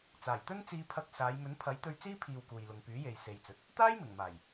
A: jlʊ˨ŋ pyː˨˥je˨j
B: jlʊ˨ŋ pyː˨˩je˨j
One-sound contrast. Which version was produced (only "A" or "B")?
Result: A